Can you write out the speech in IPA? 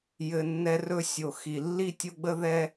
jɘ˧nːɛ˦rɵ˦ sʲo˨ xi˨ lːi˦tʲo˦ɡ͡bə˦ ðɛ˦

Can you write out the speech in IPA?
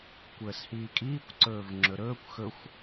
kʷəːshiːkʼiːkʷ ǀɵːvŋ͡ǁɵɾɵːkʷ xɵxʷ

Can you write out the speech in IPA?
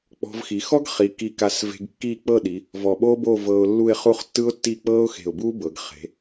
k͡pɔ̤˧vxi˩˧ xɔ˥ɡχi˩˧ ki˧ka˧˩sve̤˧ɡ kːiː˥˧k͡pɤ˥˧ɗi˩˧ | vɔ˧˩ɓoː˥boː˥˧ vɤː˧ʊ̯lːu˥˧ɪ̯ χu˥˧χtːɯ˥ʊ̯tːiː˥˧ k͡pɤː˥ʊ̯xe̤˧˩ʊ̯buː˥bɤ˩˧ɡ χe̤˩˧

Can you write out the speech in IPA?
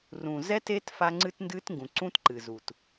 rũ˨zɛ˦te˦t fa˦ŋ͡ǀɨ˦tndɨ˦tŋɡũ˨ ǀũ˦tǃɨ˨zu˨t

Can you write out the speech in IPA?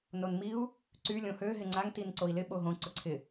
nonmiu̯ | ǀy lʲõhø ɦɪŋ͡ǀaŋ tinǀoi̯lɪ ɓoɦõ ǀʊǀʰɪ

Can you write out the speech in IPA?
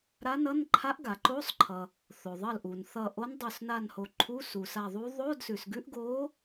ɾa˧˥nʌ˧˥˧nǃʰa˧˥ʔ ɡa˩ǃo˧˥˧sˤǃʰʌ˩ | θo˩ðˤʌ˧˩lʔu˩n θʌ˧˩ʔo˧˥n dˤo˧˩s na˧˩nho˩ ǃʰu˧˥˧su˩sa˧˩ðˤu˧˥ ðˤo˧˥˧dsʉ˩sɡʉ˧˥ʔ ɡo˧˥

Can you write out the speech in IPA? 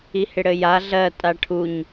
ihɪɽɘja ɮɜ tʼaʈʰuɲ

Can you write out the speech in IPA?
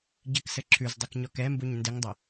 ɟɪksɘ ǁʰʉzdˤʉk ɲɔkɛmbuɲ ndɪŋdˤɘ

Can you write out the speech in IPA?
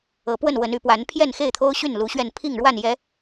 ɤ˨˦pwə˥˨n wə˨˦ny˨˦pwa˨˦n pʰjɛ˥˨nxe˥˨ɪ̯t̪ʰo˦ʊ̯ɕy˥˨n lu˨˦ɕɥɛ˥˨n pʰi˥˨ŋɻwa˥˨njɛ˨˦

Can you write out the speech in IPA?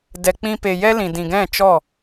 dɛ˨k͡pĩ˧ pe˨jɛ˦lĩ˨ dĩ˨ ɡɛ̃˦˨t͡ʃɔ˦˨

